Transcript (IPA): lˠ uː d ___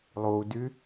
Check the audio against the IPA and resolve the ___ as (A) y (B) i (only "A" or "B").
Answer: A